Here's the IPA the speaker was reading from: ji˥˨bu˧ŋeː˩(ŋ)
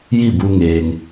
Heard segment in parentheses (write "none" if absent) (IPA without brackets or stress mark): ŋ